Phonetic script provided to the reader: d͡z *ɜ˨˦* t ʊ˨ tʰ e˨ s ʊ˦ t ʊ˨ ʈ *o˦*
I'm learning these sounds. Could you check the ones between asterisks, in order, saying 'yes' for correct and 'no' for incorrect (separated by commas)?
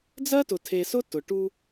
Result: no, no